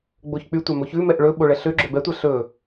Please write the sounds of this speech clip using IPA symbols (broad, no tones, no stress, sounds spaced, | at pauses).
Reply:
ɡ͡b o ç k͡p y tʷ ɑ m o ç ʉ m ɛ ʔ ɭ ɵ ɓ o ɭ ɛ ɬ ø ɡ͡ǁ ø b ɛ tʷ æ ɬ ɵ